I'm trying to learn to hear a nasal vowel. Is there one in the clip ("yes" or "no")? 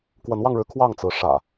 no